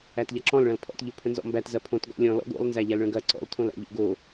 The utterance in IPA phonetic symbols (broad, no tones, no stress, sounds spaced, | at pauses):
æ t ʎ ɐ ǁ ɔ̃ l ɭ ɐ̃ l pʰ ɔ̰ t ʎ o pʰ ə̃ n z ɔ̰ m b æ t z ɐ pʰ õ t ɡ ɔ̰ lʲ ɔ̃ l ɔ̰ ɡ o̰ lˠ n z æ ʎ æ l ɭ ə̃ ɡ ɐ ǀ ɔ̰ l tʰ õ l æ̰ ʎ o̰ ɡ o